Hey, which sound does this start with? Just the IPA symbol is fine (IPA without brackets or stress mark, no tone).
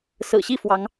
s